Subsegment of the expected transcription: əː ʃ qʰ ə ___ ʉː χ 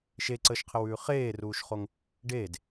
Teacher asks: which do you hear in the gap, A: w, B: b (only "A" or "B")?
A